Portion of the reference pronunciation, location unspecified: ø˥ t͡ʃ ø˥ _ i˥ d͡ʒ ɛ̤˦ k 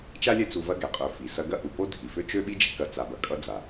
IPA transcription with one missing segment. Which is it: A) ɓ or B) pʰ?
A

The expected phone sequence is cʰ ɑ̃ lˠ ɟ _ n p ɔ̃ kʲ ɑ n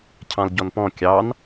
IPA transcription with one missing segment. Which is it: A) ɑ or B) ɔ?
B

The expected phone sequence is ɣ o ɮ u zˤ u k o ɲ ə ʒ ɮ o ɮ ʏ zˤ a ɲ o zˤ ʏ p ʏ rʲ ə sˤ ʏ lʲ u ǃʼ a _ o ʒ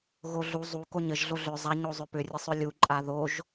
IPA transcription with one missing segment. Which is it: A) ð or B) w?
A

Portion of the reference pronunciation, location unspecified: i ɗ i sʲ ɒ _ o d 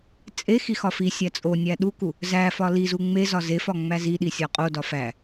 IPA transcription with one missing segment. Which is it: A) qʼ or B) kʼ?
A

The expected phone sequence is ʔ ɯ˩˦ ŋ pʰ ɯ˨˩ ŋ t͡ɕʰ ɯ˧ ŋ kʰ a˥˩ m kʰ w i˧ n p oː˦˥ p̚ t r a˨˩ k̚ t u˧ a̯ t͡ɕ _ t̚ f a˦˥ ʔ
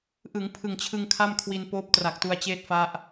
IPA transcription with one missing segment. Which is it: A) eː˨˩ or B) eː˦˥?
B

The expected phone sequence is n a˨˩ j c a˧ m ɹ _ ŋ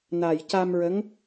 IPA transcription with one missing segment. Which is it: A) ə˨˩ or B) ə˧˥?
B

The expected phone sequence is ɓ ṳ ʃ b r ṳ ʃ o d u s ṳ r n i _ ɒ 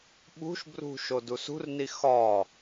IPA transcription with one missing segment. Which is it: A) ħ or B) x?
B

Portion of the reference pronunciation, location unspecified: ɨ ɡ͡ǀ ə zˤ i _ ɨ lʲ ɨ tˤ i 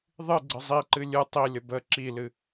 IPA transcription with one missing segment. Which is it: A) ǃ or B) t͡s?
A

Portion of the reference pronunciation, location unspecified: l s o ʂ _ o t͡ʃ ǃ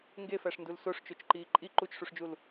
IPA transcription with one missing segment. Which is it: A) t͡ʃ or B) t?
A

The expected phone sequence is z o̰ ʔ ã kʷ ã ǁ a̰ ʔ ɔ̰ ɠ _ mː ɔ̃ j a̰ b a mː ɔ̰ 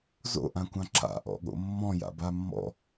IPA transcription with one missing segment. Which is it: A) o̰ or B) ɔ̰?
A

